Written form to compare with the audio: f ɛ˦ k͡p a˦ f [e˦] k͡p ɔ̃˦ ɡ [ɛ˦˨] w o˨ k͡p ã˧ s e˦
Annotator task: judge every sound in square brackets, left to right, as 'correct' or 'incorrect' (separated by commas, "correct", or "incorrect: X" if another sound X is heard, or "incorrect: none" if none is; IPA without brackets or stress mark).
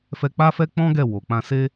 incorrect: ɛ˦, correct